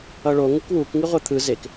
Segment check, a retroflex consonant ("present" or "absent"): present